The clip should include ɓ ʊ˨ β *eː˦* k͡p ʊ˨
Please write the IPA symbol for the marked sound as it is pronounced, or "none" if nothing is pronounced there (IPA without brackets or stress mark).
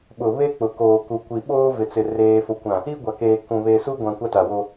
e˦